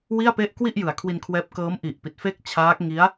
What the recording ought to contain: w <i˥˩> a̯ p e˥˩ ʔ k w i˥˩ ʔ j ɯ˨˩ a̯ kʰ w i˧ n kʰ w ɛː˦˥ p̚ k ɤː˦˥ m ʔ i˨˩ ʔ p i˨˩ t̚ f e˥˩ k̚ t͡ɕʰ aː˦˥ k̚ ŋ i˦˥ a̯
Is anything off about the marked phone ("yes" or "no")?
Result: no